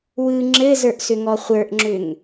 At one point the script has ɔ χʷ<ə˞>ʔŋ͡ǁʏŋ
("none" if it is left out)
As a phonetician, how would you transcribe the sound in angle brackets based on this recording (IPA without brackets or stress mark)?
ə˞